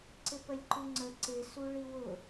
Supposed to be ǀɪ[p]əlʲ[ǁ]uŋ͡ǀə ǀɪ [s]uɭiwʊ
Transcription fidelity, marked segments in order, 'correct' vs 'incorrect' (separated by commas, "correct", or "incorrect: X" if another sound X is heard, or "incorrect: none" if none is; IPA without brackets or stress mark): correct, incorrect: ǃ, correct